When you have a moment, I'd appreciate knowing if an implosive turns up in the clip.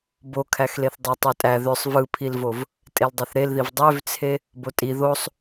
no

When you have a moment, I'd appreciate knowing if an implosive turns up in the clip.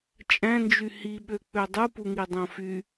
yes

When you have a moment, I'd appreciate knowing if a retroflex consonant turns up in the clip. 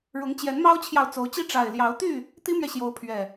yes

